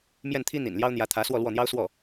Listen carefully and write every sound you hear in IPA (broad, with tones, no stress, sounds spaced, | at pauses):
m j ɛ˥˩ n t̪ʰ i˥ n̪ ḭ˨˩ n l j ɑ˥ ʊ̯ n̪ j ä˧˥ t̪ʰ ä˧˥ s w ɔ˥˧ l w ɔ˥˩ n̪ j ɑ˥ ʊ̯ s w ɔ˥˩